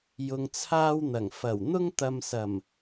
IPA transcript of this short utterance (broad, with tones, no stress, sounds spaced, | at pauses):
j ʊ˧ ŋ t͡sʰ aː˥ w n̪ ɐ˨˩ ŋ f ɐ˨˩ w n̪ ʊ˥ ŋ t̪ ɐ˧ m s ɐ˨˩ m